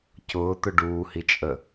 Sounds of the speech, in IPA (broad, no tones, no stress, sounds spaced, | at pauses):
c ʊː t̪ ʊ ɖ uː h i t͡ʃʼ ə